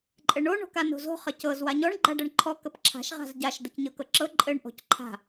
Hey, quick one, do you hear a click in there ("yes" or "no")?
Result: yes